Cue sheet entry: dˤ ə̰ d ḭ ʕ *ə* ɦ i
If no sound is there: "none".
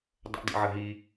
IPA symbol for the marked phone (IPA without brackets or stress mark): ə